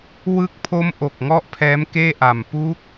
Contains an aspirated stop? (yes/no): yes